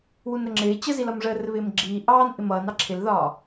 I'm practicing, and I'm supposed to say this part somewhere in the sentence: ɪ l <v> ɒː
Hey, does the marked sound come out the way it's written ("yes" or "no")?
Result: no